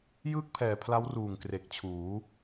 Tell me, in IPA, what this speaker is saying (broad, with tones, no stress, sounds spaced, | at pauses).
j ɯː˥˩ k̚ pʰ ɛː˨˩ pʰ l a˦˥ w r uː˨˩ ŋ k r e˨˩ k̚ t͡ɕʰ uː˩˦